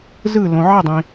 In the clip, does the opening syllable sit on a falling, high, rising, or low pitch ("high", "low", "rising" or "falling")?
falling